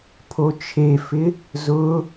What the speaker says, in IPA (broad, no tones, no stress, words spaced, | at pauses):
pʰot͡ʃʰefɪ | zʊ